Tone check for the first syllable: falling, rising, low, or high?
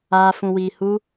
high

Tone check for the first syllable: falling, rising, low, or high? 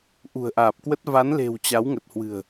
low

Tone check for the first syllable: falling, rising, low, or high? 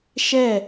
falling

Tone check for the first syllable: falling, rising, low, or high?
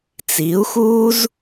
rising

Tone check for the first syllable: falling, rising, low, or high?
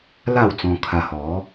falling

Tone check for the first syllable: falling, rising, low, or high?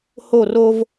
falling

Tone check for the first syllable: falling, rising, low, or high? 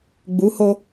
rising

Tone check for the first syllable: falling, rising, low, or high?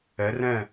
rising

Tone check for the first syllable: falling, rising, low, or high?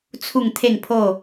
falling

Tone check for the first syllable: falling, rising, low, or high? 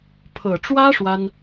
low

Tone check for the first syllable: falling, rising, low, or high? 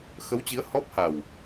rising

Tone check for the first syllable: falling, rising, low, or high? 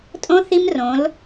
high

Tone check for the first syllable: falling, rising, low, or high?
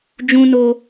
high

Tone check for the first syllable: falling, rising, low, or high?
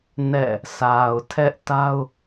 falling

